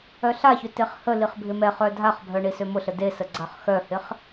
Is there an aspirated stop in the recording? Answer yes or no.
no